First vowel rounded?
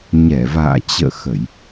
no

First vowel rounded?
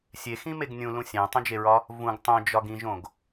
no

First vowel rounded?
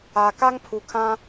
no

